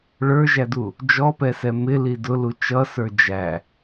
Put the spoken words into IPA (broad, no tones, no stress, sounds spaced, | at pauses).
ɭ ə˞ ʒ æ d u | d͡ʒ ɔ p ɛ s ɛ m ɪ l i d ʊ l u t͡ʃ ʌ s ə˞ d͡ʒ æ